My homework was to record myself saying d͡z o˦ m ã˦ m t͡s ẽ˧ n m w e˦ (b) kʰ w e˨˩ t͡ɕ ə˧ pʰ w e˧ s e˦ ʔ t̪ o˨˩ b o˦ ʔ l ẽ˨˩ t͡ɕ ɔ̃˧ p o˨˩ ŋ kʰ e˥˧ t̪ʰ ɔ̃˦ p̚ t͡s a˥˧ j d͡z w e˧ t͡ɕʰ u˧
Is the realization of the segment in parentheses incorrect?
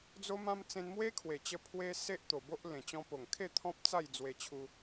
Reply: yes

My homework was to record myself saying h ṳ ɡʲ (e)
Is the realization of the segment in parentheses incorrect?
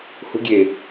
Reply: no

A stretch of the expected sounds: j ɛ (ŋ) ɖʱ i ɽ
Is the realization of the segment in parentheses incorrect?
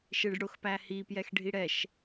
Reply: yes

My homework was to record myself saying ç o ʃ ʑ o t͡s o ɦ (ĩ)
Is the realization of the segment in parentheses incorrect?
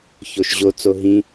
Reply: no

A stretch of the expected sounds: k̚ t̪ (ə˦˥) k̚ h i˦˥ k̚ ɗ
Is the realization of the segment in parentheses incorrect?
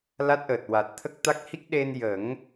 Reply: yes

